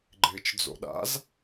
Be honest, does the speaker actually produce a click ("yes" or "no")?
yes